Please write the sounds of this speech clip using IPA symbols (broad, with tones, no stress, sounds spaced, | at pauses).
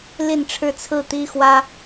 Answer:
l i˥˧ n ʈ͡ʂʰ ɻ̩˥˧ t͡sʰ ɹ̩˥˩ t̪ i˥ x w ä˥